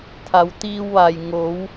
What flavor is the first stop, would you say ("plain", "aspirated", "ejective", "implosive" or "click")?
aspirated